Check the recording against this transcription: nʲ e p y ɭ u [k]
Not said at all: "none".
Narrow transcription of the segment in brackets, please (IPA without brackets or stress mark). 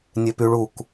k